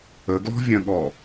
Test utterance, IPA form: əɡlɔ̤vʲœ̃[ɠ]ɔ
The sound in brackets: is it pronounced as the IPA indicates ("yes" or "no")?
yes